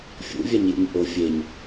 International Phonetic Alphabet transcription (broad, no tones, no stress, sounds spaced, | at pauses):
fʲ ṵ vʲ a ɲ j ṵ ɲ ʔ o fʲ e ɲ